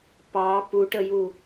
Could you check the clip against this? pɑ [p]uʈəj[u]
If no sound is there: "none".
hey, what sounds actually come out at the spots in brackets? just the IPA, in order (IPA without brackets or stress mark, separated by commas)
p, u